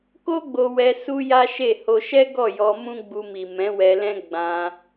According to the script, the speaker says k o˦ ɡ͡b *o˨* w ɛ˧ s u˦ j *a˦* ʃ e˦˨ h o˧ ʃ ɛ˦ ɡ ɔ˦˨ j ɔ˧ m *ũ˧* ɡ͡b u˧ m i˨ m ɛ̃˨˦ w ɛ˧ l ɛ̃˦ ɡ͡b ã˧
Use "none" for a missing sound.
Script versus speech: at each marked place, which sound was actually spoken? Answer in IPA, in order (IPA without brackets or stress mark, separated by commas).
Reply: o˧, a˦, ũ˦